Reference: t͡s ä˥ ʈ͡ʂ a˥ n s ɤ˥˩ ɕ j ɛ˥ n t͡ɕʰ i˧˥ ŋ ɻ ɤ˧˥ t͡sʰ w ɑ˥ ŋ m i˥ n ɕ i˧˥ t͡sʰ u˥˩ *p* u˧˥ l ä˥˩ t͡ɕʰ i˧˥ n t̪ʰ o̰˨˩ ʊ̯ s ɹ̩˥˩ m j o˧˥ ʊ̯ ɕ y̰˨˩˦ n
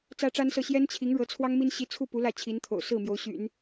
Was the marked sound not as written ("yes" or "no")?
no